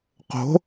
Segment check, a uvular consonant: present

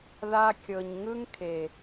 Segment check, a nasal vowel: absent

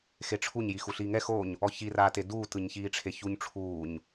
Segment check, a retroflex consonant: present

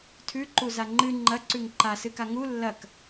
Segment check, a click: present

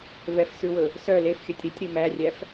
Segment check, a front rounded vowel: present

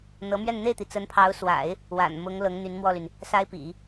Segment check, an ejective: absent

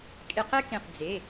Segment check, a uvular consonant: present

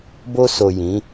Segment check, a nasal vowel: present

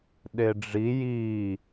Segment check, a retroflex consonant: present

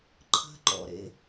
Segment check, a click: present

